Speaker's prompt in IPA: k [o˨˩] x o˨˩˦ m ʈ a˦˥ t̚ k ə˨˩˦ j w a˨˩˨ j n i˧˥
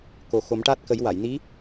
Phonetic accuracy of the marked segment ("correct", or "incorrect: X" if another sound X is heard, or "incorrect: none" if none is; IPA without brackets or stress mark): correct